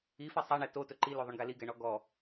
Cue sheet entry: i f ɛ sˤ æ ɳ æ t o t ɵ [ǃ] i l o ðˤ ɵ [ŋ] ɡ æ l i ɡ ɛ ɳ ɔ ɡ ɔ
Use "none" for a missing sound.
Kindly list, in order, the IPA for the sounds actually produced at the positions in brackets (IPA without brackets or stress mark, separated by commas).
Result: ǃ, ɳ